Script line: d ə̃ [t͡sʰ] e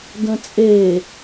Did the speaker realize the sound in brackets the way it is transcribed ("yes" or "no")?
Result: no